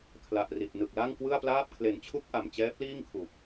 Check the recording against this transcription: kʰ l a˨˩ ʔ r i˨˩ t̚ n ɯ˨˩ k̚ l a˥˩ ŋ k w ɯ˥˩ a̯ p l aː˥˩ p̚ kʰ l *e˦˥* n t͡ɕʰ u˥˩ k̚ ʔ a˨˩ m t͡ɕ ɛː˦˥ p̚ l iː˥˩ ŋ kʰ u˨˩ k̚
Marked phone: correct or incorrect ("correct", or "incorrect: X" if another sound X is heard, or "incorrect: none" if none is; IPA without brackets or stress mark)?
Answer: incorrect: e˨˩